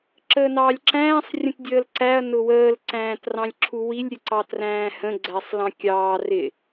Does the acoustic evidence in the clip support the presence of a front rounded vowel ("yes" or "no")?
no